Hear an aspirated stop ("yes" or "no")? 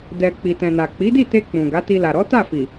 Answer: no